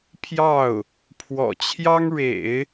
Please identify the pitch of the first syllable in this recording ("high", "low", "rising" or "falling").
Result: falling